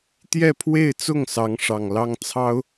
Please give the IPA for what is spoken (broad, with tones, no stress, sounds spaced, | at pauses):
t̪ j ɛ˥˧ pʰ w e˥˧ ɪ̯ t͡s ʊ˥˩ ŋ s ɑ˧˥ ŋ ʂ ɑ˨˩ ŋ l ɑ˥ ŋ t͡sʰ ɑ˥ ʊ̯